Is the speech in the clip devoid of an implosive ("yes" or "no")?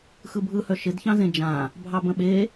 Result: no